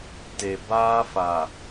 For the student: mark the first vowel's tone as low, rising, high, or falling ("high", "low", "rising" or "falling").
low